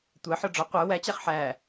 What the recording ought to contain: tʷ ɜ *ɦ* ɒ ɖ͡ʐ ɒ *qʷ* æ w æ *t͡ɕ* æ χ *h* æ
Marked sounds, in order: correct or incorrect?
incorrect: ħ, correct, correct, incorrect: ħ

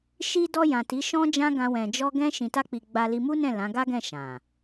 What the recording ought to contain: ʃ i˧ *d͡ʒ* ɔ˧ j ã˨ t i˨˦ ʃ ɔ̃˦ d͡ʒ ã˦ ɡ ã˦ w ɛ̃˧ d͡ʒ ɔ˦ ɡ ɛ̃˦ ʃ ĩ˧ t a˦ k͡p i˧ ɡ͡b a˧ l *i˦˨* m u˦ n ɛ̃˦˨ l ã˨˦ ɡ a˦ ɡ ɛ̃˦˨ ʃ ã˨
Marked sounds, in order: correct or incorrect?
incorrect: d, incorrect: i˧

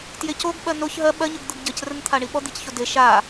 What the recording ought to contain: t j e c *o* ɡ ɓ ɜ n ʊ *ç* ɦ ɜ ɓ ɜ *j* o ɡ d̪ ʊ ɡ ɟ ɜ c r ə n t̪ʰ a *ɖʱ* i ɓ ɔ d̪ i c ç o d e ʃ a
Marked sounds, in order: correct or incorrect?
correct, correct, incorrect: ɲ, incorrect: ɳ

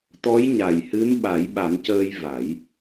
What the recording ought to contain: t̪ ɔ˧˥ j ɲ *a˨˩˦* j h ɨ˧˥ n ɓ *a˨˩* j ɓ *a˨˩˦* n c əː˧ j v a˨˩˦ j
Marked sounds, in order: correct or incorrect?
incorrect: a˨˩, incorrect: a˨˩˦, correct

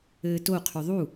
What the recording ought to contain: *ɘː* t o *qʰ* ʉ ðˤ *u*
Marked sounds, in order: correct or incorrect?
correct, correct, correct

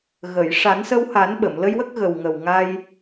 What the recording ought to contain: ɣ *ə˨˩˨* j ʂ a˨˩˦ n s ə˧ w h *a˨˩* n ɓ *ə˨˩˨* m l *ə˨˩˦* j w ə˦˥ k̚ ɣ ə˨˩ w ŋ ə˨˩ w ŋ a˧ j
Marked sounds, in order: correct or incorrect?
correct, incorrect: a˨˩˦, correct, incorrect: ə˧

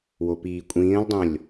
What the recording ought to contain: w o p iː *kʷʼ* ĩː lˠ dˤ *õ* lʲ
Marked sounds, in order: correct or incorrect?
correct, correct

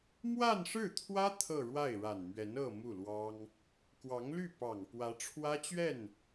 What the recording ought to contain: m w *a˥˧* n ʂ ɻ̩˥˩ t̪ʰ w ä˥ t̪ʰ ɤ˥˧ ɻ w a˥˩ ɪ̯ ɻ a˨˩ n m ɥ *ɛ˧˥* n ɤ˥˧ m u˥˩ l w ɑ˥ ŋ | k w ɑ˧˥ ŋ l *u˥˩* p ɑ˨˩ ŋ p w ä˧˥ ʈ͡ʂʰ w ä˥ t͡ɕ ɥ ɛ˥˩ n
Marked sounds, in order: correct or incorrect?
correct, correct, incorrect: y˥˩

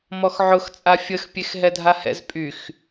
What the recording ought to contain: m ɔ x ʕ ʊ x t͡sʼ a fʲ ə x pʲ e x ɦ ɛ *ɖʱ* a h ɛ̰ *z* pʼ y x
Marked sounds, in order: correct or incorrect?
incorrect: dʱ, correct

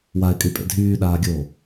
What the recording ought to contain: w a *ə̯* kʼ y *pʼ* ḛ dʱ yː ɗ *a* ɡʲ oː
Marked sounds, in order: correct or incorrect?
incorrect: ɪ̯, correct, incorrect: aː

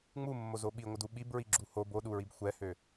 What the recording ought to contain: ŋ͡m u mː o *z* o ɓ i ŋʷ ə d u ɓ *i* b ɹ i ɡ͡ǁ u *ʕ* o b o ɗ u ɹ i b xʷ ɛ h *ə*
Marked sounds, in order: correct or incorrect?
correct, correct, incorrect: h, incorrect: ø

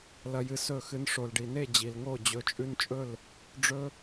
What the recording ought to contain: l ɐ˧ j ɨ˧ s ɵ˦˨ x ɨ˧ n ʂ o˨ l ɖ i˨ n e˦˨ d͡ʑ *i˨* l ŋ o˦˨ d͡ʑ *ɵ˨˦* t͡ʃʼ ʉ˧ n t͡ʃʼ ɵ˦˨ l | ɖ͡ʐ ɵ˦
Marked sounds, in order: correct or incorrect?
correct, correct

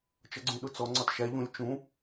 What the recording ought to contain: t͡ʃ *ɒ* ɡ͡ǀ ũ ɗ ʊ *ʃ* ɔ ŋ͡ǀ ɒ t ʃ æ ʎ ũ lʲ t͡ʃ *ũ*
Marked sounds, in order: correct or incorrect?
incorrect: ʌ, incorrect: t͡s, correct

